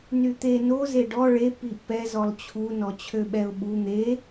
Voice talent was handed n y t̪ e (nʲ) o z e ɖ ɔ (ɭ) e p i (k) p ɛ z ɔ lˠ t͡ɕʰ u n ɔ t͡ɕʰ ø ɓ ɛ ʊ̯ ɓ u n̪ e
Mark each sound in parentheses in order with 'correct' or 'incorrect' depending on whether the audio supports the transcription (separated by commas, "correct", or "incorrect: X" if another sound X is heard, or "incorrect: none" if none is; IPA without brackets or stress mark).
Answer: incorrect: n, correct, incorrect: ʔ